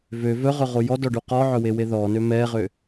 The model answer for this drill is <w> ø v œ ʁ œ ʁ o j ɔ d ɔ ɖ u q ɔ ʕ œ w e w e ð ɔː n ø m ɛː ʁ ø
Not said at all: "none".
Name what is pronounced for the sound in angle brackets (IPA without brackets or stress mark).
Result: v